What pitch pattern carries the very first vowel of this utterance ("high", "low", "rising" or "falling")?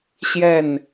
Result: falling